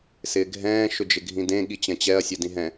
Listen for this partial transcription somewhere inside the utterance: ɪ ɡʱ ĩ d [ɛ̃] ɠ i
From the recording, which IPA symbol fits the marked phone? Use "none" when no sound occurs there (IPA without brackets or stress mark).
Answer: ẽ